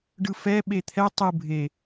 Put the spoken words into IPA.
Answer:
ɖ ɯ f ɛ ɓ e t̪ʰ ɛ tˤ ɯ bʱ e

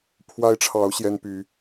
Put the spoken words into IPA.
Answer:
pʰ w a˦ ɪ̯ ʈ͡ʂʰ ɑ˨˦ ʊ̯ ɕ j ɛ˦ n p y˨˦

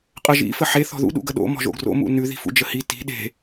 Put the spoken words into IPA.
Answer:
qʼ ə ʒ ḭ f ə ħ e θ ɔ̤ ð ṵ ɗ ṵ ɡ ə ɗ o̰ m ɔ̤ ʒ o̰ ɡ r o̰ m ṵ n ʉ ð i̤ f ṵ d͡ʒ ə h i t i̤ ɗ e̤

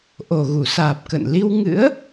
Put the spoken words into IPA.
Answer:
ʔ o˨˩ ɣ u˧˩ s aː˨˩ p̚ k ə̰ː˧˨ n l i˧ w ŋ ɨ̰˧˥ ə̯

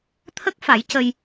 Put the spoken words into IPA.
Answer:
t̪ʰ ə˦˥ k̚ f a˨˩˦ j c ə˧ j

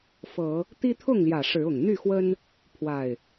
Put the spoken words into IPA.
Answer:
f ɤ˨˦ | t̪ i˦ t̪ʰ ʊ˥˨ ŋ l j ä˨˩ ʂ ɻ̩˨˦ ʊ˨˩ ŋ n̪ y˥˨ x w ə˦ n | pʰ w a˨˩ ɪ̯

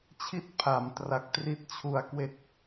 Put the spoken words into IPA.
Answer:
t͡ɕʰ i˥˩ t̚ pʰ a˩˦ m t r a˨˩ k̚ t r i˦˥ t̚ t͡ɕʰ u˨˩ a̯ k w e˦˥ k̚

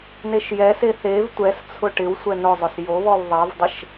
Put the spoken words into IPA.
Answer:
n e ʃ j ɛ s e θ e v tʷ ɛ s t͡sʰ ʊ ʈ ɪ w sʷ ɛ n ʊ zˤ ʊ s j o β ɔ w ðˤ ɛ v dˤ ɪ ʃ

